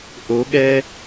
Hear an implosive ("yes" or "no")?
yes